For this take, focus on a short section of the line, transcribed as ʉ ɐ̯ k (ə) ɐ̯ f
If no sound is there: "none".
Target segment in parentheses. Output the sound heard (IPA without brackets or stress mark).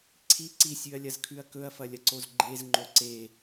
ɵ